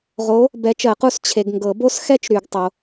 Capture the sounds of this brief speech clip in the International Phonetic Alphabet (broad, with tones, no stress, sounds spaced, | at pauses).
ʁ o˨˥ | b ɛ˨˥ t͡ʃ ɜ˨˩˦ q u˥˨ s t͡ɕʰ e˨ ɡ ŋ ɡ ɤ˨˩˦ b o˥ s x ɛ˥ t͡ʃ ɾ y˨˩˦ ɡ tˤ o˨